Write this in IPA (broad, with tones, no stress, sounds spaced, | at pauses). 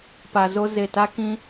p a˨ z o˦ z e˨ t a˦ k ĩ˦